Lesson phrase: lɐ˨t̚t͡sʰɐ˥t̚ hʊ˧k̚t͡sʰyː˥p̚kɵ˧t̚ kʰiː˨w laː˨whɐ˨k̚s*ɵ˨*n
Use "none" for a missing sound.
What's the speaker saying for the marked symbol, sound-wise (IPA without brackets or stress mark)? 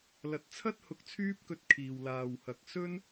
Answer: ɵ˥